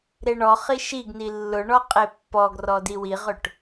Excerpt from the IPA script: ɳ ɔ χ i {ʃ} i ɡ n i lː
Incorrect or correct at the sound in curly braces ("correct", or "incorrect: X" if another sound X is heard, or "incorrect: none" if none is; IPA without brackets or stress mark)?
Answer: correct